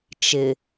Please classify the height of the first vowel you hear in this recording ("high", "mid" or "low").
high